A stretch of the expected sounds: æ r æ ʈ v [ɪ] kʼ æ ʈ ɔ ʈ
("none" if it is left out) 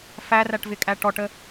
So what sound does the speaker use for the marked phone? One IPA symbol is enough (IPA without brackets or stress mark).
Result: ɪ